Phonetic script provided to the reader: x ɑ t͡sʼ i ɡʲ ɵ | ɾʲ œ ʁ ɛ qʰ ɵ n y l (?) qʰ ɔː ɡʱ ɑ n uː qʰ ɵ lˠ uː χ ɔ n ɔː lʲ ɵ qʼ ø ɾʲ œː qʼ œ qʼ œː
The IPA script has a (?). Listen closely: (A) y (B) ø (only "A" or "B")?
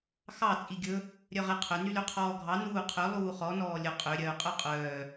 B